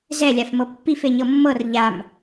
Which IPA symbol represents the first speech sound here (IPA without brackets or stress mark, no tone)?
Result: z